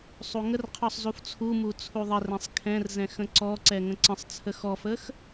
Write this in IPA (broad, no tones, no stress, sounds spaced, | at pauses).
sˤ u ŋ ə r qʰ ɔ sˤ z u f t͡sʰ u m u t͡sʰ u ðˤ ə r ɛ̃ sˤ kʰ ɛ̃ r z ɛ̃ x ə̃ ǀ ɔ ǀ ɛ ŋ ə̃ ǀ ə̃ sˤ t͡sʰ ə x ɔ f ə x